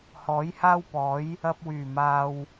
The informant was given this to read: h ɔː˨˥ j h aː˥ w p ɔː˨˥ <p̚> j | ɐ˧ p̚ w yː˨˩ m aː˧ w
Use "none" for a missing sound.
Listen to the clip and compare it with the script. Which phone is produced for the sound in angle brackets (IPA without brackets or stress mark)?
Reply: none